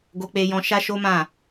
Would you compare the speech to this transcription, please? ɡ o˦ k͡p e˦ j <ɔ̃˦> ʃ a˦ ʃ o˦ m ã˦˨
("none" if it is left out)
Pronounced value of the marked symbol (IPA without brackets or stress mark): ɔ̃˦